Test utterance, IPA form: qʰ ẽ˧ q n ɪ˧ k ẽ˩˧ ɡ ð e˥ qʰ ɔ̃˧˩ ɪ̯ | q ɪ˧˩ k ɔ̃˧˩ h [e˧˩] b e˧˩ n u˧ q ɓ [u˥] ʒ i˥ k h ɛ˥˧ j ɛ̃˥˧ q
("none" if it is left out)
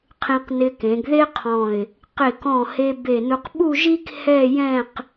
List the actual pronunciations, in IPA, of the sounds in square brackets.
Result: e˧, u˥˧

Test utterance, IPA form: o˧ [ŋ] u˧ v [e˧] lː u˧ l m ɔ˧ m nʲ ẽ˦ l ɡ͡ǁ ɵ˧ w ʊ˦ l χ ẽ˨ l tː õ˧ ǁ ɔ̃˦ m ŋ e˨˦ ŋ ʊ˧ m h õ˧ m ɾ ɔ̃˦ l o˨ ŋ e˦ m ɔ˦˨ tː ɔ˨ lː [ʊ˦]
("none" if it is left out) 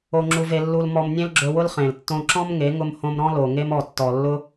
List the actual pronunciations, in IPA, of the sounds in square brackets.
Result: ŋ͡ǁ, e˧, ʊ˦

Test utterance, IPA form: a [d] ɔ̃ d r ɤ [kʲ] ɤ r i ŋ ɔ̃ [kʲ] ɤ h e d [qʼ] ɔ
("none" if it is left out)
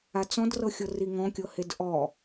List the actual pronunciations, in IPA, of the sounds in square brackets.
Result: t͡s, xʲ, kʲ, ʔ

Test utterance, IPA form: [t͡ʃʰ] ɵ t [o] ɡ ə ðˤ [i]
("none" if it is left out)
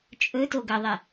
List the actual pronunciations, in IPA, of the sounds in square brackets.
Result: t͡ʃʼ, o, e

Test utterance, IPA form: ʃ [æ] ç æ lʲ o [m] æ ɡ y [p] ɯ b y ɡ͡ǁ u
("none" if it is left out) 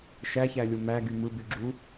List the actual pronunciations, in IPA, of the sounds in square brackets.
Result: æ, m, m

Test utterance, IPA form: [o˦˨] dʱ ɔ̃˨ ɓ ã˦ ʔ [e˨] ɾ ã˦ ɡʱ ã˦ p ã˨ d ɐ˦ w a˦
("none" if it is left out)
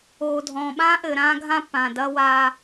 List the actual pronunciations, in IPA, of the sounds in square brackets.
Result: o˨, ɘ˨

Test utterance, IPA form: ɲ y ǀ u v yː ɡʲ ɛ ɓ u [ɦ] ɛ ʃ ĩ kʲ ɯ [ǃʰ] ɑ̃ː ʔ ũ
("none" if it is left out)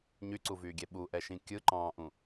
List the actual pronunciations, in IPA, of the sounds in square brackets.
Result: ʔ, ǃ

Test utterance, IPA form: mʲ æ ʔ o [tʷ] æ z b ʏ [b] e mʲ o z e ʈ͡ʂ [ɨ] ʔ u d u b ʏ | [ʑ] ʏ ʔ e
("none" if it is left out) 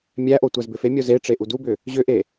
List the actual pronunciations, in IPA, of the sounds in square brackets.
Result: tʷ, f, e, ʑ

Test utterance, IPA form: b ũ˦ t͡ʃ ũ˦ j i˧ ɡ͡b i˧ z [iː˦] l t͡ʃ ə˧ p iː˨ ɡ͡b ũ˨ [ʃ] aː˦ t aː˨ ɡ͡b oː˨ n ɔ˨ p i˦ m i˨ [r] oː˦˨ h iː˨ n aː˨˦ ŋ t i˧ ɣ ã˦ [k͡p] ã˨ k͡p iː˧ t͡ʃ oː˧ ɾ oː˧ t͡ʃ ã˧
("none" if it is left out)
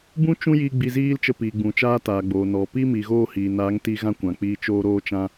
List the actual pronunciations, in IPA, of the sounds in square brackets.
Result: iː˦, t͡ʃ, ɣ, kʷ

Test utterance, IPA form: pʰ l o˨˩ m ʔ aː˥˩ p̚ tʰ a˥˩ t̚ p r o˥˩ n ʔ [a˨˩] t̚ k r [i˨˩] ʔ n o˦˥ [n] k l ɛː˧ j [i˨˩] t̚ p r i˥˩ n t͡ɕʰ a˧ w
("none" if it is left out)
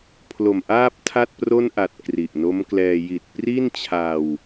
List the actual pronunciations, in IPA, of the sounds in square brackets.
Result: a˨˩, i˨˩, m, i˨˩

